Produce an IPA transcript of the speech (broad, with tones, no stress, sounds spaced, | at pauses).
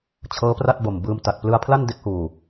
t͡ɕʰ ɤː˦˥ p r a˥˩ t̚ b o˨˩ m b ɯː˧ m t a˨˩ t̚ p l ɯ˧ a̯ pʰ l a˥˩ n d e˦˥ k̚ h uː˨˩